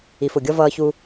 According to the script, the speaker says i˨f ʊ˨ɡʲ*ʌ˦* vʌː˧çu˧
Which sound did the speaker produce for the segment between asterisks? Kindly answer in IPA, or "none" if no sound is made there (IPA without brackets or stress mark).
ʌ˦